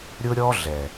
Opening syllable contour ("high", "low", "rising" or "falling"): high